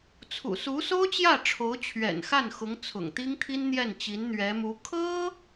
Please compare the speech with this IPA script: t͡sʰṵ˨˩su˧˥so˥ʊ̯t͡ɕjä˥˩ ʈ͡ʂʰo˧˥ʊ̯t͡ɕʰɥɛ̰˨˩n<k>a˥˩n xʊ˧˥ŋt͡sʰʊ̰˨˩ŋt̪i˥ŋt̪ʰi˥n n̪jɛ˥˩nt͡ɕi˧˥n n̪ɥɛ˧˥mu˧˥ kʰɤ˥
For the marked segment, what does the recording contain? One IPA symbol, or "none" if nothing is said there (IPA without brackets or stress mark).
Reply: x